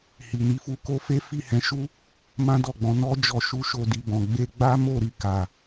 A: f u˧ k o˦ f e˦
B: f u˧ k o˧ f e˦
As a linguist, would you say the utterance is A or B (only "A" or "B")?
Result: B